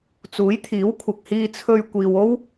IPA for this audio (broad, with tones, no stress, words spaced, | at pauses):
t͡suː˨˥jt̪ʰiː˨˥wkʷʰɐ˨k̚ hiː˧t͡sʰɵ˧ɥ kʷiː˨wo˥w